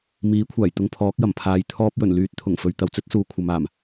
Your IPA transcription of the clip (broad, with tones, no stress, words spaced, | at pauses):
miː˨˥kʷʰaː˨˩jt̪ʊ˧ŋ pʰɔː˨˥k̚jɐ˨˩m pʰaː˨j t̪ʰɔː˧p̚jɵ˨˩nlyː˨˥t̚ t̪ʰʊ˨˩ŋfɵ˨ɥ t̪ɐ˨wt͡sɵ˥t̚suː˨ kʷʰɐ˨maː˨˩m